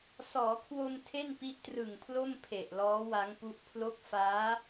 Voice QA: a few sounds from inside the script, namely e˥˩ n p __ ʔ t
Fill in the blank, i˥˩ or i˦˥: i˦˥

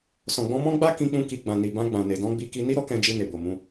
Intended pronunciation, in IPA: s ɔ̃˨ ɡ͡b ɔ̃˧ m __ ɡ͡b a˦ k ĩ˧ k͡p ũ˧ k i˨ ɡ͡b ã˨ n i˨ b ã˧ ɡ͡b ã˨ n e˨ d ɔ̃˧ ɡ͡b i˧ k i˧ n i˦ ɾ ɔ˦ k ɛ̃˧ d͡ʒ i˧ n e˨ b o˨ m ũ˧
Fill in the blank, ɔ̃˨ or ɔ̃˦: ɔ̃˦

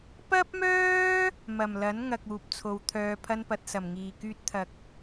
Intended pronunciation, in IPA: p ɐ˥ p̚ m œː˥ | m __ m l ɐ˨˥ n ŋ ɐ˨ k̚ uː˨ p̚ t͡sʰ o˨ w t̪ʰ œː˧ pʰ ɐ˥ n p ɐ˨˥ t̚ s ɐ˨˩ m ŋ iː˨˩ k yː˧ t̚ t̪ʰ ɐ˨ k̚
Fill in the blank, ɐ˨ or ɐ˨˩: ɐ˨˩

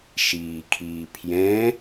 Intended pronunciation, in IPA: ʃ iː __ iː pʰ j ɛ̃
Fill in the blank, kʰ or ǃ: kʰ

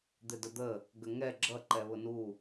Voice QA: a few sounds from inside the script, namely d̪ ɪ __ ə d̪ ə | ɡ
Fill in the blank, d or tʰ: d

